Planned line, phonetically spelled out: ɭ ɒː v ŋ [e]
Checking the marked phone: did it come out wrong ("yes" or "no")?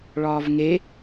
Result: no